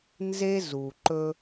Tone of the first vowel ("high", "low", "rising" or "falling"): high